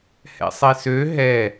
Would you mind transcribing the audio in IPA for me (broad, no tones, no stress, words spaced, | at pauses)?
hɛ̰sˤesø ɦɛ